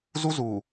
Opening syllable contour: high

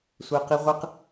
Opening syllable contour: high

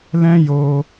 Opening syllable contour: high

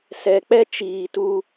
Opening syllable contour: low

